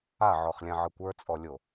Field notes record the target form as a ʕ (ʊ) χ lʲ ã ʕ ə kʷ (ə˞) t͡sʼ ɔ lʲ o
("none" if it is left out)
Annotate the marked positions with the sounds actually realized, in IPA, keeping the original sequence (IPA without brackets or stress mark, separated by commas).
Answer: ɔ, ə˞